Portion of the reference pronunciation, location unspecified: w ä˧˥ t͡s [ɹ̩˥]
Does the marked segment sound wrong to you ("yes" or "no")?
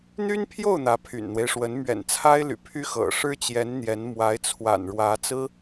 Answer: no